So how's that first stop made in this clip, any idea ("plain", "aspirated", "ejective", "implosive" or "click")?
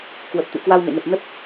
plain